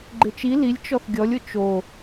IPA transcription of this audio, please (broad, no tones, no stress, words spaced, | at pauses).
ɡ͡ǃɪt͡ʃi lilʲ t͡ʃɔθɡʲɔlʲ ʊt͡ʃo